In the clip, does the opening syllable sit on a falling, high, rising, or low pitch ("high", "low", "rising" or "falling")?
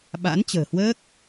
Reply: rising